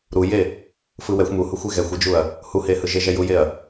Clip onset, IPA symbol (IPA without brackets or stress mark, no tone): ɾ